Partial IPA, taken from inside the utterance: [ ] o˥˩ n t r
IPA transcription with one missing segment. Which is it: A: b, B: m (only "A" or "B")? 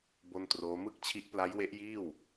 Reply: A